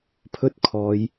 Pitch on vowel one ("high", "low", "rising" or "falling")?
high